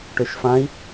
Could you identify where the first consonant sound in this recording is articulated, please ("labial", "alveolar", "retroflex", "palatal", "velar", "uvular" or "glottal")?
retroflex